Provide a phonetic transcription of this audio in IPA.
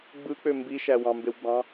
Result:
ɡ͡b ɯ k͡p ø m b i ʃ æ w ɑ̃ m b e w ɡ͡b ɑ̃

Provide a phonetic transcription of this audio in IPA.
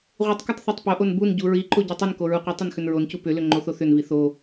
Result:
ʁʷ i tˤ k u tˤ θ o tˤ p o ʔ o n b u n ɟ u ɹ i ǃ o ɟ u tˤ ʏ n k o ɹ u qʷ i tˤ ʏ n x ʏ n ɹ o n c u p ʏ l ʏ ŋ͡ǃ o θ o θ ʏ n v i θ o

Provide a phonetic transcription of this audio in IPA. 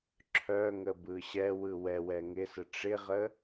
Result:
ǁʰ œ ŋ ə b ɯ ɕ ɛ w ɯ w ɛ w ɛ ŋ ɪ s ə ʈ͡ʂ ɪ ʁ ə

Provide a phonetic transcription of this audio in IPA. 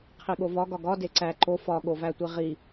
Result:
qʰ i ɠ o v ɒ ɡ ɒ ɡ ɒ d e ǀ æ ǃ o f ɒ ɠ o v æ tʷ i ʁ i

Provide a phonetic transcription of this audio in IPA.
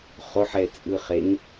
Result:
χ o ħ ɛ t͡sʼ ɯ χ e ŋ

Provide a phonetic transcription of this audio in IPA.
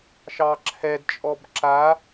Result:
ʃ ɑ ǁʰ ɛ d t͡ʃʼ ɔ b ǁ a

